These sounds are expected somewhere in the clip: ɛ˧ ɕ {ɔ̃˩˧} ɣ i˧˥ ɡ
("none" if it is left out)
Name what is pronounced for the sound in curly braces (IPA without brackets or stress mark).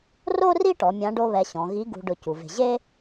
ɔ̃˩˧